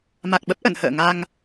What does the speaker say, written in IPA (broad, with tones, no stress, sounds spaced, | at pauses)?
m a˨˩ k̚ ɓ ə˦˥ p̚ ʔ ə̰˧˨ n h ə̰ː˧˨ ŋ a˧ ŋ